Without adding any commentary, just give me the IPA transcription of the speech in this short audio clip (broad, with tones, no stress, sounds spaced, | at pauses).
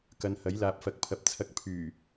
k ɐ˨˧ n h ɐ˨˥ j l aː˨ p̚ f ɐ˨ k̚ pʰ ɐ˨ p̚ t͡sʰ ɐ˧ k̚ pʰ yː˨˩